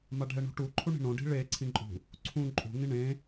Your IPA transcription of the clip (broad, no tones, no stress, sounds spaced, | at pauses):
m a ɖʱ ɛ ɳ ṳ ʈ u ǃʰ u ɳ i̤ ɳ õ ɖ i̤ ɭ e ǀʰ ĩ ǃʼ ṳ | ǀʰ ũ ǃʼ ṳ ŋ ĩ ɳ ẽ